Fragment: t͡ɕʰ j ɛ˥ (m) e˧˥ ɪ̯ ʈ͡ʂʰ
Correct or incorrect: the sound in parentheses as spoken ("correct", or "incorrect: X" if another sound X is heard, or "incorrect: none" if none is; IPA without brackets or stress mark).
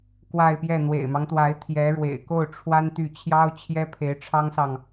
incorrect: pʰ